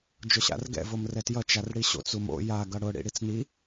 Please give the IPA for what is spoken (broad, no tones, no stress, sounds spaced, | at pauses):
d͡ʒ ʊ ɕ a̰ r ɡ ɛ̰ v o m r ɛ t j ʌ t͡ʃ a r ɽ i ɕ o̰ t͡s u m o̰ j a ɡ ʌ ɽ ʊ ɽ ḭ ɽ i t͡s n i